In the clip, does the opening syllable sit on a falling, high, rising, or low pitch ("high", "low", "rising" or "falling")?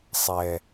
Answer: low